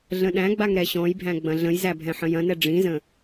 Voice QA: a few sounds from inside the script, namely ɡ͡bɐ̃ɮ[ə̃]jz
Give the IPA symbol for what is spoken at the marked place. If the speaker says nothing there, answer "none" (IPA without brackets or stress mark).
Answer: ə̃